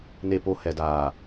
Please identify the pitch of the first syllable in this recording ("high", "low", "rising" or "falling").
low